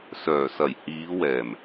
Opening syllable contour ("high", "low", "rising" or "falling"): low